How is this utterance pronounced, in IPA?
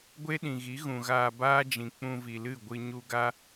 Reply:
ɡʷ e˦ ɗ ĩ˨ ɣ i˨˦ ɣ ũ˨ ɣ aː˧ b aː˦ d͡ʒ ĩ˨ k͡p ũ˧ v i˨ l ɨ˦˨ ɡʷ ɨ˧ ɲ u˧ ɡ a˦

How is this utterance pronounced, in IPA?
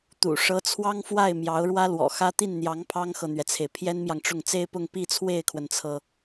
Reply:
t̪ ṵ˨˩ ʂ ɤ˧˥ t͡sʰ w ɑ˥ ŋ f w a˥˩ ɪ̯ m j ɑ˧˥ ʊ̯ ɻ w ä˥ l w ɔ̰˨˩ x ä˥ t̪ i˥˩ n n̪ j ɑ˧˥ ŋ pʰ ɑ˥ ŋ x ɤ˨ n̪ ɥ ɛ˩ t͡sʰ e˩ ɪ̯ pʰ j ɛ˥ n m j ɑ˨ ŋ ʈ͡ʂ ʊ˥˩ ŋ t͡s e˥ ɪ̯ p ʊ˥˧ ŋ p i˥˧ t͡sʰ w e˥˩ ɪ̯ kʰ w ə˩ n t͡sʰ ɤ˩

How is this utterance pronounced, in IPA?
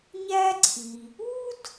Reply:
ɲ æ˥ ǀʰ i˩ | u˥ d

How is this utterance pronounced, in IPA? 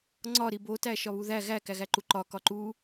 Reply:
ŋ͡ǀ ɒ ɾ i b o t æ ʃ ɒ β u ð æ ɣ æ k æ ɣ æ ǃ u ǃ ɒ k ɒ ǃ u

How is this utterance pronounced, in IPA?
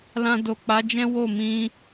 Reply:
l ã˧ d o˨ k͡p a˨˦ d͡ʒ ɛ̃˦ w o˦˨ m ĩ˧

